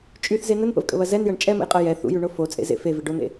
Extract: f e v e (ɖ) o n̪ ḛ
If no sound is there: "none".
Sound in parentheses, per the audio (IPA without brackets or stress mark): ɖ